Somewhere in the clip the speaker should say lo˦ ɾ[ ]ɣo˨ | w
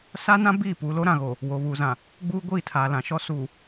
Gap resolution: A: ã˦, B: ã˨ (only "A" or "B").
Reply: B